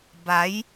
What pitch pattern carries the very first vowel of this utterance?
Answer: rising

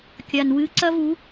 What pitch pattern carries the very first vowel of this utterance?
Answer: low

